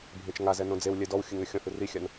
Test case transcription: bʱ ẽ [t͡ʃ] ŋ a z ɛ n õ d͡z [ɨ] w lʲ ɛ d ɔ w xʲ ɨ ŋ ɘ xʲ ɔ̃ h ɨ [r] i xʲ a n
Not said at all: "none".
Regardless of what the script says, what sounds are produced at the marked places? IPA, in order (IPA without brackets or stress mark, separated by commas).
t͡ʃ, e, r